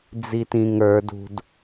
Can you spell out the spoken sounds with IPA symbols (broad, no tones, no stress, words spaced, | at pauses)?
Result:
d͡zitĩŋə˞d ṳd